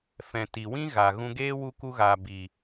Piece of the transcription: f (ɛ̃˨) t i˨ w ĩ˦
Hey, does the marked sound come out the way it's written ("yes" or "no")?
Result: yes